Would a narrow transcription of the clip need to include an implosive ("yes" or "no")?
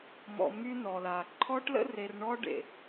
no